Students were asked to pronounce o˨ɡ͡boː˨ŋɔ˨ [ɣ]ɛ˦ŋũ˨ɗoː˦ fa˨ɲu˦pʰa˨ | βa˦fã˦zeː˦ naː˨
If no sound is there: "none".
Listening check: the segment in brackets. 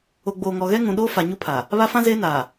ɣ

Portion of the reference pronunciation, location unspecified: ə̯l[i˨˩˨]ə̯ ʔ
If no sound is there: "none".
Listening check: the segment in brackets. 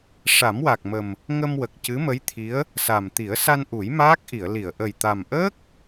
i˨˩˨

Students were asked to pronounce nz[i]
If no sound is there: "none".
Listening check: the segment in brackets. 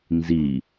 i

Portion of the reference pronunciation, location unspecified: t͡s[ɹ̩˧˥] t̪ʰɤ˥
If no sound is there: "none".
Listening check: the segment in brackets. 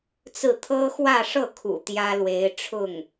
ɹ̩˥˩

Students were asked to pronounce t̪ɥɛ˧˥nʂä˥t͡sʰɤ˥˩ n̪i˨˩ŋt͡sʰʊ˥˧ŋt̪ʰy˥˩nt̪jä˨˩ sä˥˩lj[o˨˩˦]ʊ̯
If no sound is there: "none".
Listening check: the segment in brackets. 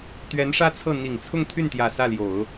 o˨˩˦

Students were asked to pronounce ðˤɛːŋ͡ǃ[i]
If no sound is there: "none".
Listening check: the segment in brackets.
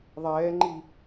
i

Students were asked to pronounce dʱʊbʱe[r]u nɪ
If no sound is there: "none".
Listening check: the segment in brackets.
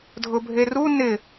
r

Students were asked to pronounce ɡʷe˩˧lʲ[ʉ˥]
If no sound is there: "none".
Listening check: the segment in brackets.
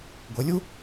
u˥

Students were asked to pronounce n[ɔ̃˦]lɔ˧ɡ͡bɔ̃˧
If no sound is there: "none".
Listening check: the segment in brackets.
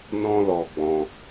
ɔ̃˦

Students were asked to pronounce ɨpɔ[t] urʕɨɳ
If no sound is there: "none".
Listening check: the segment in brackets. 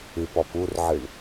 p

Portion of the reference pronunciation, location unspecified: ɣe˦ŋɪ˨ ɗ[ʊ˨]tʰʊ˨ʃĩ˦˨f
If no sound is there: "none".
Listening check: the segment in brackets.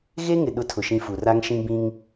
ʊ˦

